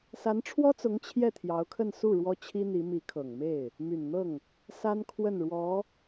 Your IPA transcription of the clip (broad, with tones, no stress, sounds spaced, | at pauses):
s a˧˥ n ʈ͡ʂʰ w ɔ˥ t͡s ʊ˧˥ ŋ t͡ɕʰ j ɛ˥˩ t̪ʰ j ɑ˧˥ ʊ̯ kʰ ə˥˧ n s u˥˩ ɻ w ɔ˥ t͡ɕʰ i˥ n̪ i˧˥ m i˧˥ kʰ ɤ˨˩ ŋ m e˥˩ ɪ̯ | m y˨˩ n n̪ ɤ˥˩ ŋ | s a˥ n kʰ w ə˥˩ n ɻ w ɔ˧˥